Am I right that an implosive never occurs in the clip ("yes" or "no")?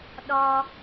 no